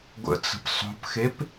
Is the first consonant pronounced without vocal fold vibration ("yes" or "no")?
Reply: no